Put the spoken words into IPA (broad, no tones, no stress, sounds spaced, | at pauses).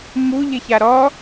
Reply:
m u ʎ ɪ ç a ɾ ɔ